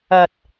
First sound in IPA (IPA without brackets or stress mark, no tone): ɐ